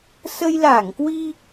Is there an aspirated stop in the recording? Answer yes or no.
no